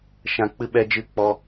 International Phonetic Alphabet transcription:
ʃ ã˧ k͡p ɨ˦ ɓ ɛ˦ d͡ʒ ɨ˦˨ k͡p ɔ˦

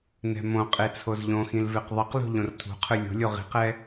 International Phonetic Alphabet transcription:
n ɛ̤ m õ qʼ e t͡sʰ o z ʎ õ x ĩ l v e q ðˤ ʌ q l o̤ ʎ õ r tʰ ṳ qʰ ɯ lʲ o̤ lʲ o ʁ i̤ q ɛ

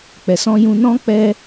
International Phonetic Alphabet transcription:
k͡p ɛ˨ s ɔ̃˧ j ũ˧ n ɔ̃˦ k͡p ɛ˦

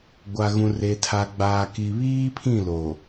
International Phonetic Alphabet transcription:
ɡʷ a˨ ɣ ũ˨ r e˨ tʰ a˨ ɡ͡b aː˨ k i˨ β iː˦ pʰ ĩ˦˨ l oː˨

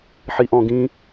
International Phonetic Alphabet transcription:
ħ i ʔ ɔ̃ ɡ ĩ

